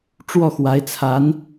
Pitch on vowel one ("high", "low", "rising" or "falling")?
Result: falling